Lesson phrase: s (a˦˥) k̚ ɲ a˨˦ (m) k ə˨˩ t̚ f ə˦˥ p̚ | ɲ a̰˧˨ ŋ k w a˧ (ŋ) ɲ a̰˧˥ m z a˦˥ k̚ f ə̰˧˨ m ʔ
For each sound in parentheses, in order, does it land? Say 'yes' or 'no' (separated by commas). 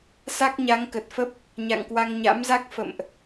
yes, no, yes